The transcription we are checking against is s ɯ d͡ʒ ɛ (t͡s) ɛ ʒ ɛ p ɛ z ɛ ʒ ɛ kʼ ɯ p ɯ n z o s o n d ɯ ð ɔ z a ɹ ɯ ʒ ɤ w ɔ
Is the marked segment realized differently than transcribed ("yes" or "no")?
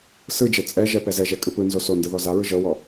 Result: yes